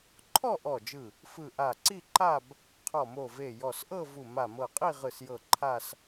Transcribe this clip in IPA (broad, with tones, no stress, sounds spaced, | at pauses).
ǃʰ ɔ˥˧ ʔ ɔ˧˩ d͡ʒ ɯ˧˩ | f ɯ˧˩ ʔ a˧˩ ǀ i˥˧ ǃ a˥˧ b | qʰ ɔ˧˩ m o˧˩ v e˧˩ j ɔ˧˩ s ʔ ɤ˥˧ v u˧˩ m a˧˩ m ɤ˧˩ qʼ i˥˧ ʁ ɯ˧˩ s j ɤ˧˩ ǃʰ a˥˧ s